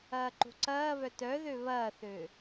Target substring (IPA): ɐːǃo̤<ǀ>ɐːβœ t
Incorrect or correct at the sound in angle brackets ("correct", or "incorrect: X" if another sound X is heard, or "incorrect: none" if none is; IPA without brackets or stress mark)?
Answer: correct